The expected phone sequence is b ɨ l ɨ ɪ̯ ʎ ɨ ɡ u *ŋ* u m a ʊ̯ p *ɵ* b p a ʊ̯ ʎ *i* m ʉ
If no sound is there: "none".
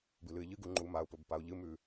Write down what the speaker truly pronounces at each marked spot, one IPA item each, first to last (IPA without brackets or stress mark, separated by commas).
ŋ͡ǃ, ɵ, ɨ